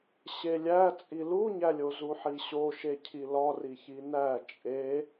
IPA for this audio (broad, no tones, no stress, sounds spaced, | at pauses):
ɕ e lʲ æ t͡sʼ i l u ɲ æ lʲ o z u ħ i ɕ o ʃ e cʰ i l ɒ r i ç i n æ t͡ʃʼ e